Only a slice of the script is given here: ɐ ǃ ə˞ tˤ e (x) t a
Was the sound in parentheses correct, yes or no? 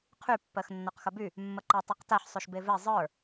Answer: no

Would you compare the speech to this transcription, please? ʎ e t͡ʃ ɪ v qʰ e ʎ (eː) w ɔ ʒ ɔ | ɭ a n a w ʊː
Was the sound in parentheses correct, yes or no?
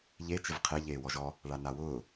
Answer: yes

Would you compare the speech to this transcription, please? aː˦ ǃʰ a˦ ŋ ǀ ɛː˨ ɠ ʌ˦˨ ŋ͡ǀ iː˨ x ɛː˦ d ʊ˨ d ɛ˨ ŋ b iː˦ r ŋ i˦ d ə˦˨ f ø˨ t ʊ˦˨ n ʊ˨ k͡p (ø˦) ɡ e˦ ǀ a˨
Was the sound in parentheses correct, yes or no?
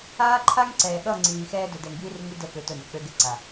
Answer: yes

